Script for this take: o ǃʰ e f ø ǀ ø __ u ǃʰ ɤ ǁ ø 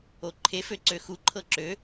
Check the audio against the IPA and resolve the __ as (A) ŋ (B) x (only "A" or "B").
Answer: B